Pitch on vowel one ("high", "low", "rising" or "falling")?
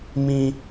high